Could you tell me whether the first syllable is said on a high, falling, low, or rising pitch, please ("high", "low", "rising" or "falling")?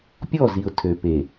falling